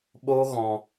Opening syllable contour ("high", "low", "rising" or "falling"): high